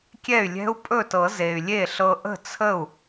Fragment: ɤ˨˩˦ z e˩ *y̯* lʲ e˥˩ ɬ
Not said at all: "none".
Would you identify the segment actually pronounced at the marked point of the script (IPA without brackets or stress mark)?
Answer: y̯